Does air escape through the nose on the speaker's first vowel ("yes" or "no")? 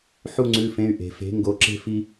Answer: no